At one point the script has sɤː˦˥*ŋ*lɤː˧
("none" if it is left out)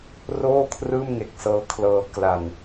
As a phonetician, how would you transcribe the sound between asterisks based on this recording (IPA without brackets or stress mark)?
kʰ